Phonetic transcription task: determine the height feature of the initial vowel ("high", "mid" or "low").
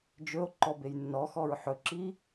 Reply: mid